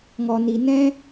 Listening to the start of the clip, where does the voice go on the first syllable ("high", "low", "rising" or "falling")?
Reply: low